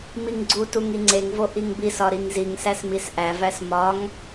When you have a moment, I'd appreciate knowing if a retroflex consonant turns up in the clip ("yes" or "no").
no